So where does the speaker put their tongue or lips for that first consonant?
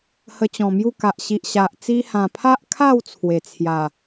throat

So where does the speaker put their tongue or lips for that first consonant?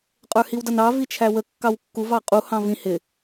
uvula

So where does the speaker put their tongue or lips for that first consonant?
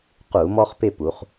uvula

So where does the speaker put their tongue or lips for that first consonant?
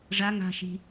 retroflex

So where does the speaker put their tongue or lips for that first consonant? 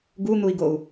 velum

